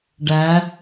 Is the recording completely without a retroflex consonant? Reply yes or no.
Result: no